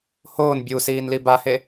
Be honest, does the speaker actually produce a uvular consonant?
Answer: no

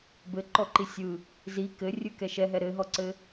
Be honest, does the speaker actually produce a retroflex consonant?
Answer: no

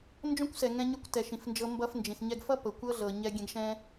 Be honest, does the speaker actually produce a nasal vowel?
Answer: yes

